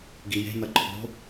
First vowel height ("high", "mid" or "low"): high